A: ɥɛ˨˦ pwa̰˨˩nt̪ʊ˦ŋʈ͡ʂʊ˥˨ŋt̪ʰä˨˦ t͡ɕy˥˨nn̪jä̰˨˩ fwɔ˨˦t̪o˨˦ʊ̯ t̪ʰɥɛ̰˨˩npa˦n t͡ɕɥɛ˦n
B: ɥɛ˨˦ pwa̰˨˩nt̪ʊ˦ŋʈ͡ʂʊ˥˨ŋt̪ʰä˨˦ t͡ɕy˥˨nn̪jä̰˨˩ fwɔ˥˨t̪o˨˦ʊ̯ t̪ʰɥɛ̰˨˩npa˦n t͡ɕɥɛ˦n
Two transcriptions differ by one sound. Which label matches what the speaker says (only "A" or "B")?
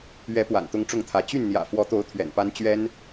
A